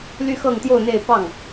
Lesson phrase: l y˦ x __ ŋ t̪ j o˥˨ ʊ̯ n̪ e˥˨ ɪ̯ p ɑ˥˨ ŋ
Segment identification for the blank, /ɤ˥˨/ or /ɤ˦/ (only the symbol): ɤ˥˨